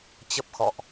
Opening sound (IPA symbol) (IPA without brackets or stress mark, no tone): t͡ɕ